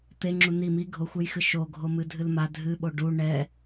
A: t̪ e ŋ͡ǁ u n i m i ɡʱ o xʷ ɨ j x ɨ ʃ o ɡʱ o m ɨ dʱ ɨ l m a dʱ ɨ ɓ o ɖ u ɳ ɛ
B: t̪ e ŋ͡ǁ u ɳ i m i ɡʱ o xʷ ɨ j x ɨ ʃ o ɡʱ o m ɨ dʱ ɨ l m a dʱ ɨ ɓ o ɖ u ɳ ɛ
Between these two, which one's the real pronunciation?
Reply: A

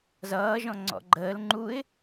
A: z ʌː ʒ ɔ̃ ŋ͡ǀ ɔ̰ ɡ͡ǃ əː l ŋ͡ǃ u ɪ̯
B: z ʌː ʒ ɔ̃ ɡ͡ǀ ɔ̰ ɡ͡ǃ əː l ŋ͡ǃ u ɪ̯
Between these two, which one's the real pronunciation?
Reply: A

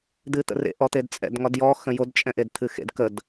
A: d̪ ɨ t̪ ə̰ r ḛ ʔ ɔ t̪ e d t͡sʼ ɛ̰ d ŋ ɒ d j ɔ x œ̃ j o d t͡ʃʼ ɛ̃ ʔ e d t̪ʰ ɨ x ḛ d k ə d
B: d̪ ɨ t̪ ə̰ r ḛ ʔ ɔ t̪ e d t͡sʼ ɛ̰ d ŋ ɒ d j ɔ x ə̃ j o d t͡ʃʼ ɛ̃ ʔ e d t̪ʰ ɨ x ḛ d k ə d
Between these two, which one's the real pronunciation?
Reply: B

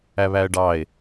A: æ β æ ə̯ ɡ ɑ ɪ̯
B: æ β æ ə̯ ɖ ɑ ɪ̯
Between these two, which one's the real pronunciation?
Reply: B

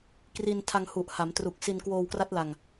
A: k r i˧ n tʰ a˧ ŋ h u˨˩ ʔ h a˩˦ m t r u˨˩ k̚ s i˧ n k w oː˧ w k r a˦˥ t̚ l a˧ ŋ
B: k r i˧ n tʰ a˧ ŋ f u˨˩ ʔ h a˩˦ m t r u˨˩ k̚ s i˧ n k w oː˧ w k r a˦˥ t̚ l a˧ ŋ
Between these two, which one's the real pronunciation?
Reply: A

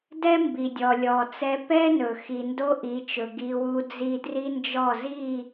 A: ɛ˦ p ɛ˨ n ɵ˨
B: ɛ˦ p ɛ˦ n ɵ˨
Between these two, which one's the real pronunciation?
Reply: B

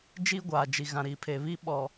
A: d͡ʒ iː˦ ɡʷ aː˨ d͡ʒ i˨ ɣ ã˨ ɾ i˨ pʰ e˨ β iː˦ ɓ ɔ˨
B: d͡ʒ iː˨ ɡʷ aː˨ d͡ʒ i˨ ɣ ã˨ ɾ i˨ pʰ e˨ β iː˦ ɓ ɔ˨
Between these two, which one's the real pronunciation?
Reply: A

